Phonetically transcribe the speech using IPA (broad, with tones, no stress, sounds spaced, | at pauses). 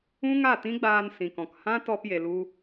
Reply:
ũ˦ ŋ a˦˨ t ĩ˦ ɡ͡b aː˧ n s ĩ˨ k ɔ̃˨ k h ã˦ t ɔ˧ p j e˨ l u˧